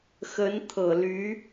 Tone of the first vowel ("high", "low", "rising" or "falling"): rising